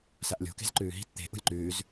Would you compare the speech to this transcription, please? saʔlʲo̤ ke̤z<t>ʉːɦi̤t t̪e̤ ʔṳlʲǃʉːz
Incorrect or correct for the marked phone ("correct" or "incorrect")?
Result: incorrect